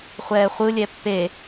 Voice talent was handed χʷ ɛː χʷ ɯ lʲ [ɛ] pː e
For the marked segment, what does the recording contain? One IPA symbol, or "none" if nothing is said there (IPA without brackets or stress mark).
ɛ